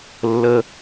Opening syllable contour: high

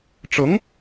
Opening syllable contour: rising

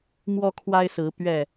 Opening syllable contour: high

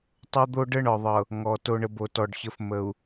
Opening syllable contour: high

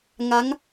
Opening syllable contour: rising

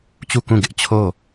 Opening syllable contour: falling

